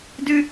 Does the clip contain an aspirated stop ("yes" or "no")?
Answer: no